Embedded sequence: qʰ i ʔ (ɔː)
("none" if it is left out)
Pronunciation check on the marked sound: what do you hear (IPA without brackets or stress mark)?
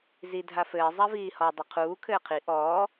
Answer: ɔː